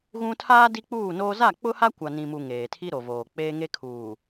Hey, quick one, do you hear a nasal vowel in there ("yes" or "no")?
yes